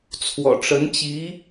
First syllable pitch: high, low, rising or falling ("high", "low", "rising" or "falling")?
low